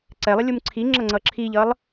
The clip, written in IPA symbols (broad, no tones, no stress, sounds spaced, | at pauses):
ǀ ɛ lˠ ə lʲ u m ǀʰ i ŋ͡ǁ ʌ ŋ͡ǀ ʌ ǁʰ i ʎ ʌ lˠ